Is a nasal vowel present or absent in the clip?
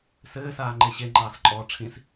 present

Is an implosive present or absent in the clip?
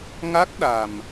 present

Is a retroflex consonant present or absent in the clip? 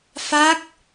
absent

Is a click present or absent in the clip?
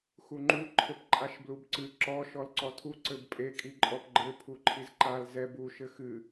present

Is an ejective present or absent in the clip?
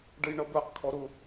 absent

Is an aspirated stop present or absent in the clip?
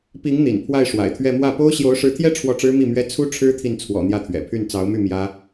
present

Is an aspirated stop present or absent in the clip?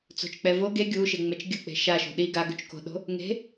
absent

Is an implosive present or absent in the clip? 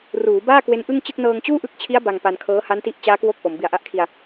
absent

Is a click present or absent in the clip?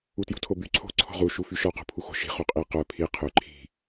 present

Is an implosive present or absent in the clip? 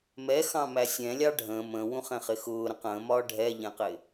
absent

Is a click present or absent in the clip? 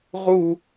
absent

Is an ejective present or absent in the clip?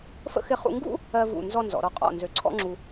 present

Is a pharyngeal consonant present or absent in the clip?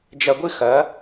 absent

